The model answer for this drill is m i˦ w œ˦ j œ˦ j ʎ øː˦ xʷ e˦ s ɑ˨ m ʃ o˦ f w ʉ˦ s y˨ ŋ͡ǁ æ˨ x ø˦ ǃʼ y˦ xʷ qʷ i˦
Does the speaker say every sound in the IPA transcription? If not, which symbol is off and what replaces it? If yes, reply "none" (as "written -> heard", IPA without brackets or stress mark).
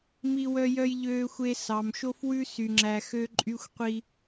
none